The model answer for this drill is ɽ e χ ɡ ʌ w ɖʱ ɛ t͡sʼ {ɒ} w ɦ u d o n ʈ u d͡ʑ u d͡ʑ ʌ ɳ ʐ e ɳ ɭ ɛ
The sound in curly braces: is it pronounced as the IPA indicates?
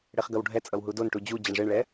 no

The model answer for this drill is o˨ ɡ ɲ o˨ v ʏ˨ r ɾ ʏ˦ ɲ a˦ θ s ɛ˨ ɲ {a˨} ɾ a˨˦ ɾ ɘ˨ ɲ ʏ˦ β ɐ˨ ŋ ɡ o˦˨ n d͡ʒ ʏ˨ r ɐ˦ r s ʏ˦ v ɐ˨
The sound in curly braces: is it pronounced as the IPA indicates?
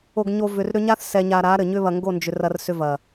yes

